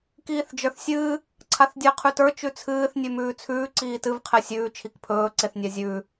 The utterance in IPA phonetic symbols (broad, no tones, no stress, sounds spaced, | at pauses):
k iː θ d͡ʒ ə˞ θ sʲ ɨː | ǀʰ a θ dʲ ɨ ə̯ qʰ ʉ t ə˞ t͡ʃ ʉ t͡sʰ ɨː θ nʲ ʉ m ʉː t͡sʰ ʉː ǀ iː t ɨ v qʰ ɛ sʲ ʉː t͡ʃʰ i k pʰ ɵː ǀ e θ nʲ a zʲ ʉː